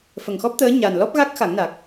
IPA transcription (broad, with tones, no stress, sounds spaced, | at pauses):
f ə˨˩ ŋ x ɔ˦˥ p̚ t̪ əː˧˥ ɲ a˨˩ n l ɔ˦˥ p̚ ɣ a˦˥ k̚ x a˨˩˦ ŋ n a˨˩ k̚